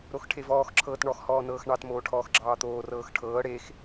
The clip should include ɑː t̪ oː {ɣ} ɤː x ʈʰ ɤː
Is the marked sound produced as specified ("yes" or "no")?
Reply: no